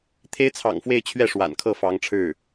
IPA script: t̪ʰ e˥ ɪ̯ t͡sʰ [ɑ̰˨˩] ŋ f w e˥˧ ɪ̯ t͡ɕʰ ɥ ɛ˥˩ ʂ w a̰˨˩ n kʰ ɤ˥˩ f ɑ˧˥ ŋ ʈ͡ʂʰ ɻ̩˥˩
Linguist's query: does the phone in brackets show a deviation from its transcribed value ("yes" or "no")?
no